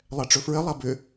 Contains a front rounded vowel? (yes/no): yes